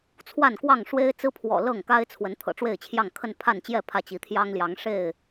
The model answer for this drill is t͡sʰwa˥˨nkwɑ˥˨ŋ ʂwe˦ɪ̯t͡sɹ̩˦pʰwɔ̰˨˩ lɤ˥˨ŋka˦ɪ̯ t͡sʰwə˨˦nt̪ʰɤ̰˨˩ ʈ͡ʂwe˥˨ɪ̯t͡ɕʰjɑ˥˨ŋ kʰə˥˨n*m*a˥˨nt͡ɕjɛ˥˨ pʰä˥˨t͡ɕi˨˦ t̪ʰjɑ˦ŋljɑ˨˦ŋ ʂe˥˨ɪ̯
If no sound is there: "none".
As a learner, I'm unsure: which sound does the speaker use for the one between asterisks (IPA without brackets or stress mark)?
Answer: pʰ